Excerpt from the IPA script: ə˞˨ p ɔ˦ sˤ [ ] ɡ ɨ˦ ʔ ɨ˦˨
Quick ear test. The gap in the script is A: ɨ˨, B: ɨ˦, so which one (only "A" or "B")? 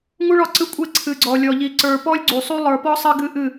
B